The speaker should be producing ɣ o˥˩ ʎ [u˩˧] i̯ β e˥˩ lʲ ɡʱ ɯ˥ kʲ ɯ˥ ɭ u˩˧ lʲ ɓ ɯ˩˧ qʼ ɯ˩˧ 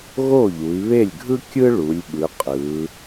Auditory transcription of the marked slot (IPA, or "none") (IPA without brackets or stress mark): u˩˧